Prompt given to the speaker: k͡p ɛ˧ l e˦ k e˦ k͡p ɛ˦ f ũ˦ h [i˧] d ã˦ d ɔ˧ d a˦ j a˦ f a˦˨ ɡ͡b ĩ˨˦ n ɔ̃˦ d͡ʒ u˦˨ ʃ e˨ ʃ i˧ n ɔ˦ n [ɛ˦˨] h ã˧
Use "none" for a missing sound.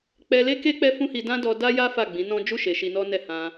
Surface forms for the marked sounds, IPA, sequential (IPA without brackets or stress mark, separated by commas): i˧, ɛ˦˨